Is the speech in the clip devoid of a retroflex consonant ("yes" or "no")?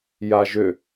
yes